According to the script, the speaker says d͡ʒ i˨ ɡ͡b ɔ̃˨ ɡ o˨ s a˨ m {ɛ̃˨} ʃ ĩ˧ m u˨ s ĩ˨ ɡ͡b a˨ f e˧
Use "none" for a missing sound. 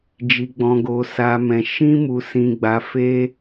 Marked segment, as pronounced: ɛ̃˨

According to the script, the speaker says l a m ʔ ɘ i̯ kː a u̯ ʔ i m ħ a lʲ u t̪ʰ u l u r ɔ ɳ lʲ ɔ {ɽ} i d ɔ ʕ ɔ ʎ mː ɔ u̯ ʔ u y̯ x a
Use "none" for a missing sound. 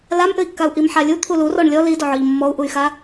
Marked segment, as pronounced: l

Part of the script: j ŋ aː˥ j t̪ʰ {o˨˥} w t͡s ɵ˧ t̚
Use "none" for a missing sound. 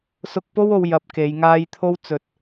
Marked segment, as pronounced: o˥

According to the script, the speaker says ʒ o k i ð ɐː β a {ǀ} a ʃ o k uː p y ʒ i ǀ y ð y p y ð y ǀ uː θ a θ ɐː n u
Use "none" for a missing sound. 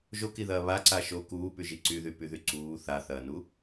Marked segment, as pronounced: ǀ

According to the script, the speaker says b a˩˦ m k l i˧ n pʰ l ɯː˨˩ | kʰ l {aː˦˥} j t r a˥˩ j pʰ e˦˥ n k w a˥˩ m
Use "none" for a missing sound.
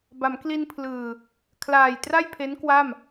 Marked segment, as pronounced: aː˨˩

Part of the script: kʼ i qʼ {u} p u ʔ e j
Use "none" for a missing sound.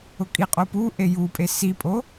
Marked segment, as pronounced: o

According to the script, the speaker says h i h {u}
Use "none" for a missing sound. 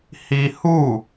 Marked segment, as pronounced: u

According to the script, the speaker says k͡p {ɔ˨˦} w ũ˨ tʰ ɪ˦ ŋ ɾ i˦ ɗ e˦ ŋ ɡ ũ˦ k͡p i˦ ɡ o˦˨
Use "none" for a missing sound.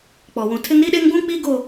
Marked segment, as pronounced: ɔ˨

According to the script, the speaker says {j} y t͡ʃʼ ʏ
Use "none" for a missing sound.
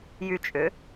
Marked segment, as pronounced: j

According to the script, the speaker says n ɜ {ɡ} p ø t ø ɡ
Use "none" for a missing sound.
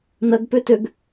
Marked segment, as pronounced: ɡ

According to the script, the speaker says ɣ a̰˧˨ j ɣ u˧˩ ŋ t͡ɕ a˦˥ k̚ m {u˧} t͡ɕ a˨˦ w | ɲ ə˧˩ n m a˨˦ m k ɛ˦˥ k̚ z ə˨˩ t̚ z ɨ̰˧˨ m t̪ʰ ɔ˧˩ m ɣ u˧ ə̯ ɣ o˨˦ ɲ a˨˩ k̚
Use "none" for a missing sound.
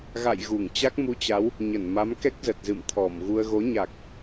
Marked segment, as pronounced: u˧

